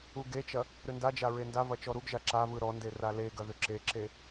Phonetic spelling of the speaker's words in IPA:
u ɡ e t͡ʃ ɐ | ɾ ʏ n d a d͡ʒ a ɹ e n d a v ɐ t͡ʃ ɔ ɾ u ɡ ʒ a ǁ a v ɯ ɾ ɔ n d e r a l e ɡ ɐ ð ʏ ǁ e ǁ e

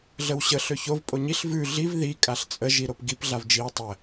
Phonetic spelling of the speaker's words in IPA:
ɮ ə w ɕ ə ɬ ø ç o v pʼ o ɲ i ɬ v ʉ ɮ i v ð i kʼ a ɬ t͡sʼ ə ʒ i ɾ o p ɡ i p ɮ a v d͡ʒ i w tˤ ə

